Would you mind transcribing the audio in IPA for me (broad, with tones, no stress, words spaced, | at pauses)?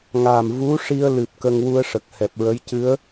ŋa˨˩mvu˧˥ʂi˧ə̯lɨ˨˩p̚ kə˧ŋwu˧ə̯ʂə˨˩k̚ hɛ˨˩p̚ɹə˧˥j cɨ˧˥ə̯